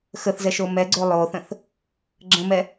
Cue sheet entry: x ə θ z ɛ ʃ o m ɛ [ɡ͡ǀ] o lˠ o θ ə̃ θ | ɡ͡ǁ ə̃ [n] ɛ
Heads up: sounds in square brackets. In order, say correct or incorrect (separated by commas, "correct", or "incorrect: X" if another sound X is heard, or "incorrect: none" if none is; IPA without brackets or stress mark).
correct, incorrect: m